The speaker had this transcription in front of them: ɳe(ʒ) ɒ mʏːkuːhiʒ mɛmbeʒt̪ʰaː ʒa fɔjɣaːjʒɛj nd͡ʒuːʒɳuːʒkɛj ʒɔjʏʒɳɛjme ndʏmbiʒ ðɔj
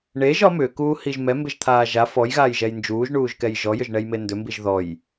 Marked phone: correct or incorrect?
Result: correct